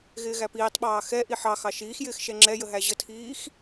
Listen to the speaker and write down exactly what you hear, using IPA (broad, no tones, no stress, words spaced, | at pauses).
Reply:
ɣɪːɣæpiːtˤɓɑː xɛʔi ħɑ xɑʃiːxjɪːx ʃɛŋ͡ǁɛjə ɦæʑətʰiːx